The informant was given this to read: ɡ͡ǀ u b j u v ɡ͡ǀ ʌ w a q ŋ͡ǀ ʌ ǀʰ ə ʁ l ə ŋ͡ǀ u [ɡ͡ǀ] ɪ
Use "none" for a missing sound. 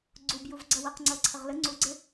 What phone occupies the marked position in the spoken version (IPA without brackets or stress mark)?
ɡ͡ǀ